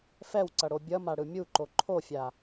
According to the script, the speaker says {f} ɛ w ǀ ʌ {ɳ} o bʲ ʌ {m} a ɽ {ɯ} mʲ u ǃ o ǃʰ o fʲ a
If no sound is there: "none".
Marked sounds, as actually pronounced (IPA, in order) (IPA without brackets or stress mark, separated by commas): f, ɽ, m, ɯ